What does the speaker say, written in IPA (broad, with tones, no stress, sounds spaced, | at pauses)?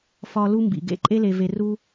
f ɒ˧ l u˧ m b ḭ˨ ɡ ḛ˦˨ ǃʼ e˦ l e˧ v e˧ r u˦